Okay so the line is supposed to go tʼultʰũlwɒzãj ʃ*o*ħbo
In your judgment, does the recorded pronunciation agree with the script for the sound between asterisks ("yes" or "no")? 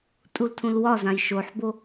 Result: yes